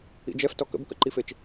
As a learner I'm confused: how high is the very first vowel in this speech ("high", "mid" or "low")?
high